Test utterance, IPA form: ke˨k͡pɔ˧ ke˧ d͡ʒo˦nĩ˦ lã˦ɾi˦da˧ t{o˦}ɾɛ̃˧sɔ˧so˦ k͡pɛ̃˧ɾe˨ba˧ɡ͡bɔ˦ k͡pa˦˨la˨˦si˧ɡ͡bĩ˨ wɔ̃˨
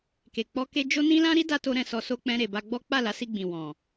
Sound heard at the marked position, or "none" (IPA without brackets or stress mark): o˦